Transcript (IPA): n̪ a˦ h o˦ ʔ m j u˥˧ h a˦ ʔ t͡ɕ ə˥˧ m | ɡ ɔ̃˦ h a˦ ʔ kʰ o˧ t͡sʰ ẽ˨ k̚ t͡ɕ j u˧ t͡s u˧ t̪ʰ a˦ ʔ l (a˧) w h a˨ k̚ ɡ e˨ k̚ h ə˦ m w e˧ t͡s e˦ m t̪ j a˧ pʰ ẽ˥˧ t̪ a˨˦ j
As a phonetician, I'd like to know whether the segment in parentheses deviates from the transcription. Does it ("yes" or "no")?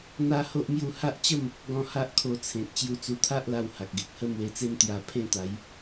no